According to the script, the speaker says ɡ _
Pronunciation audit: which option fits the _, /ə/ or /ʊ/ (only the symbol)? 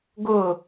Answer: ʊ